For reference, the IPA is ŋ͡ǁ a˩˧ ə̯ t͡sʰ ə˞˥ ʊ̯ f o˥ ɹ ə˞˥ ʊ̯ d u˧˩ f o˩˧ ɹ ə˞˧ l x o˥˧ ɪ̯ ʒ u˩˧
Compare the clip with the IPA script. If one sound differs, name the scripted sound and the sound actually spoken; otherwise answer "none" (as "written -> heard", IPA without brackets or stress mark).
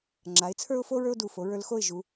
ə̯ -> ɪ̯